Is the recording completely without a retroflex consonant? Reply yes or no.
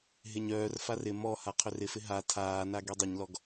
yes